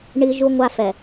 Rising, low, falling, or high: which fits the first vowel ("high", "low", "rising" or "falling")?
high